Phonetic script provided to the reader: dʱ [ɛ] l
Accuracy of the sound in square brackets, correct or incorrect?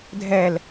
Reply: correct